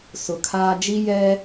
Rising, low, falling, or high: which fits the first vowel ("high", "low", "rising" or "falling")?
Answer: low